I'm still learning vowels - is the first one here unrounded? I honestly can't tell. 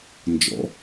no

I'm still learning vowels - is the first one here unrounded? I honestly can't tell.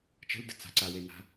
yes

